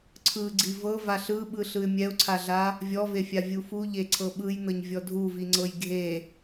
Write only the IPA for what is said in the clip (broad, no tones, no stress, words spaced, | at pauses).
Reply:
ǀʰɯɡ͡ǀi vɤ vaɬɯɓɯ ɬɯɪ̯mʲɛʊ̯ǀʰaɮa | vʲɔvefʲa vʲufu ʎeǀʰɤɓɯjnɤɲ vʲɔdʱuviŋ͡ǀɤj ɡʱe